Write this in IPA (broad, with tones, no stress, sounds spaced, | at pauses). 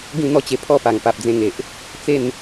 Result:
ɡ ĩ˥˧ n̪ ɔ˦ t͡ɕ e˧ pʰ ɔ˥˧ p a˨˩ ŋ p a˨ p̚ d͡z ẽ˧ ŋ e˨ ʔ | t͡s e˥˧ n